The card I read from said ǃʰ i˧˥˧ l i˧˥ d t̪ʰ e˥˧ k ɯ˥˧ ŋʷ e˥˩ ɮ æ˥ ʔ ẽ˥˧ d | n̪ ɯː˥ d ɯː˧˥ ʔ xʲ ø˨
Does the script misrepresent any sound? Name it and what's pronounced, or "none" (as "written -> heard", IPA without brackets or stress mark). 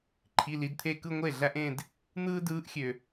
none